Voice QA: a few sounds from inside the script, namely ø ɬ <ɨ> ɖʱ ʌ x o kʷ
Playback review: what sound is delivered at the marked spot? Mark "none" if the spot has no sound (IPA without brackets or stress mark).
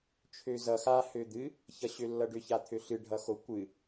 ɨ